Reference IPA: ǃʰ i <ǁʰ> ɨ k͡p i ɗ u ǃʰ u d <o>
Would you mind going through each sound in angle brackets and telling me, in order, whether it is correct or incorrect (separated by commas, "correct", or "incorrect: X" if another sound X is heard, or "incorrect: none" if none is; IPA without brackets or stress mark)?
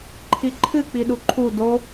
incorrect: ǃʰ, correct